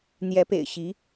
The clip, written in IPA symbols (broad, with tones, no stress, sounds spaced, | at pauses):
n̪ j ɛ˧˥ p ḛ˨˩ ɪ̯ ɕ i˧˥